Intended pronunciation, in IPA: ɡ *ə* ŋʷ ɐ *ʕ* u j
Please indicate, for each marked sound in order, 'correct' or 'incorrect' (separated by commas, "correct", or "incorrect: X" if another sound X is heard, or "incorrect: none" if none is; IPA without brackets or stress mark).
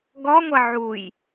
incorrect: ɔ, correct